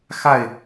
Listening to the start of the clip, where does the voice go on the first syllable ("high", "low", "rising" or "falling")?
falling